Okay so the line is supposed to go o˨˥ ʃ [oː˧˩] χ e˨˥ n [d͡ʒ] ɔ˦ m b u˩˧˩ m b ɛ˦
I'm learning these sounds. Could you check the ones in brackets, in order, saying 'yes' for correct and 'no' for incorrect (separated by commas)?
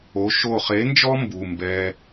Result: no, yes